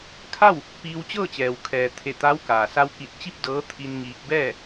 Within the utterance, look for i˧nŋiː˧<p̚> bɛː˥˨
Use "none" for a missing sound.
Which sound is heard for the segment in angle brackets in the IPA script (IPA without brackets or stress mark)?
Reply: k̚